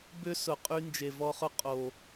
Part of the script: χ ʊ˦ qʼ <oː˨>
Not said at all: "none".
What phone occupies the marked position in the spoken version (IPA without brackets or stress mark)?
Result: o˨